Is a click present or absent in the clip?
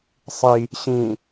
absent